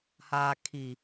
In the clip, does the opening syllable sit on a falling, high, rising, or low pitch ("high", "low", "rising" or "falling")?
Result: low